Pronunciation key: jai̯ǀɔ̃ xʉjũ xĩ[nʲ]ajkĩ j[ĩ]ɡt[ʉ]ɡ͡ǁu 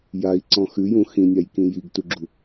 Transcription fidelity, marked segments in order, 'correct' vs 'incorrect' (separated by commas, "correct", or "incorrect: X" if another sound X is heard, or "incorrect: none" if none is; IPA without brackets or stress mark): correct, incorrect: i, incorrect: u